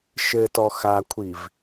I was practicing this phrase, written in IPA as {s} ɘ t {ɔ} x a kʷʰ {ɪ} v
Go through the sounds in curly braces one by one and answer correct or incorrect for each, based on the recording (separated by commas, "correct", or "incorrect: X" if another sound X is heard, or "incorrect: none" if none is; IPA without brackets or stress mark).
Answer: incorrect: ʃ, correct, incorrect: i